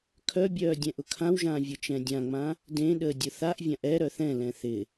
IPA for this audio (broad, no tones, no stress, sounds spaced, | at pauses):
kʰ œ bʲ œː dʲ ɛ̃ ʔ ʊ kʰ ã w ʒ ãː vʲ ʊ t͡ʃ ɛ̃ dʲ ã ŋ͡m ã | d ẽ ɗ əː dʲ ʊ θ a ʔ vʲ ã ʔ ɛ ɾ œ θ ɛ̃ l ɛ̃ θ ɪ